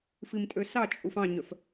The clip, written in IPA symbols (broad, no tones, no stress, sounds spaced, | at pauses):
f i m tʼ ø s ɑ t͡ʃʼ u f ɑ̃ ɲ œ f